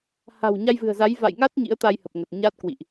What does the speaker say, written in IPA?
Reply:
ha̤˨˩w ɲa˧jvɨ̤˨˩ə̯za˨˦j va̰˧˨jŋa˦˥t̚ ɲḭ˧˥ə̯t̪a˧jhə˨˩p̚ ŋə˨˩t̚ɲa˦˥t̚kwḭ˧˨ʔ

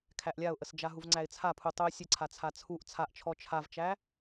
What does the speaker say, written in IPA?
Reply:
kʰæʔlʲaʊ̯ʔəsd͡ʒa ɦuvŋ͡ǀæɪ̯t͡sʰapʰu tˤuɪ̯sʲəǀʰa t͡sʰat͡sʰuʔ t͡sʰaʔt͡ʃʰɔ t͡ʃʰavt͡ʃæ

